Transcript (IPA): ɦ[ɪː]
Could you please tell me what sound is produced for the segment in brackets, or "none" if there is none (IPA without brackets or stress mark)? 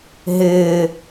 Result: ɪː